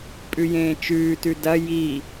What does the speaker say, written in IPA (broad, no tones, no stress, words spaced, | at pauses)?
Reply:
pʼʉjẽːt͡ʃʉːtʉ dɐ ji